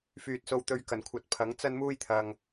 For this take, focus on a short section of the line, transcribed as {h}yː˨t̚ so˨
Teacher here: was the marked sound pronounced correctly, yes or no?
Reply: no